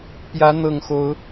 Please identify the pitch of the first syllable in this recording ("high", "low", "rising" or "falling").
rising